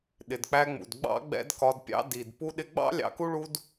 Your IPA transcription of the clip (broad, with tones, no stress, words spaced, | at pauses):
ɗɪ˨dk͡pæ˧ŋ͡mṵ˨d ɡ͡bɑ̰˦ ɡ͡bɛ̰˦dkɒ˧dpʲɑ̰˦ di˨d pu˧ɗɪ˧ɡ͡bɑ̰˦ lʲɑ̰˧ku˦ɭu˦d